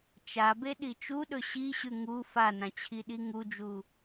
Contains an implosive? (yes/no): yes